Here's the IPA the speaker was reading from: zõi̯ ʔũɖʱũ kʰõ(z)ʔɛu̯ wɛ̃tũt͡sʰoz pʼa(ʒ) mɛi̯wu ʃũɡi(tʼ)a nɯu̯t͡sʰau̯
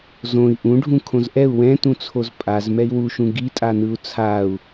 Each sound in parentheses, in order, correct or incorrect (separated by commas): correct, incorrect, correct